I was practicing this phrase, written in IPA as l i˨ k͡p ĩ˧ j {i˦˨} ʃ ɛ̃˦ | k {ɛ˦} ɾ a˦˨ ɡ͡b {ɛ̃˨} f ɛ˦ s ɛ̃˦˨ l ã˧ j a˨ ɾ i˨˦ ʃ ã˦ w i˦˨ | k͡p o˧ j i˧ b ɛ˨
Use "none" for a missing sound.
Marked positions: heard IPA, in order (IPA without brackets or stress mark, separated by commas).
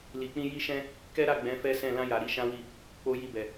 i˦, ɛ˦, ɛ̃˨˦